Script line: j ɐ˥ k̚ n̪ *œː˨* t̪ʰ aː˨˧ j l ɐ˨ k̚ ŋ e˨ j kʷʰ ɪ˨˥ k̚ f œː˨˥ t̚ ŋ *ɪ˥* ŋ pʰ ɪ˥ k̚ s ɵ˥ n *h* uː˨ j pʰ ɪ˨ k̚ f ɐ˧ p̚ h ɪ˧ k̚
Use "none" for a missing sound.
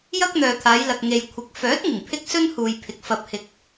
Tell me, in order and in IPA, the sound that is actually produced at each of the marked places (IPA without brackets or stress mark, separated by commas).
œː˨, ɪ˨˩, h